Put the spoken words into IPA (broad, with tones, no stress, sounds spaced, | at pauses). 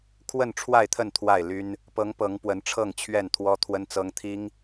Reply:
kʰ w ə˥˨ n ʈ͡ʂʰ w a˥˨ ɪ̯ t̪ʰ ə˥˨ n t̪ʰ w a˥˨ ɪ̯ l y˦ n | p ɤ˨˦ ŋ p ɤ˨˦ ŋ p w ə˨˦ n ʈ͡ʂʰ ɤ˥˨ ŋ t͡ɕʰ ɥ ɛ˥˨ n t̪ʰ w ɔ˦ t̪ʰ w ə˦ n t͡s ɤ˦ ŋ t̪ʰ i˦ ŋ